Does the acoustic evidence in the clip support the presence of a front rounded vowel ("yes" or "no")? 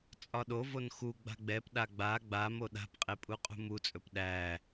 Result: no